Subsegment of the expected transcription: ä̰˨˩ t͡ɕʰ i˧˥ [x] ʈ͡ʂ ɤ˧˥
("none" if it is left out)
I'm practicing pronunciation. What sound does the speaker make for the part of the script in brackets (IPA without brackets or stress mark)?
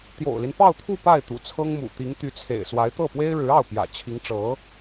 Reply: ŋ